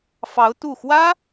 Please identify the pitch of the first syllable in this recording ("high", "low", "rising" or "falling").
rising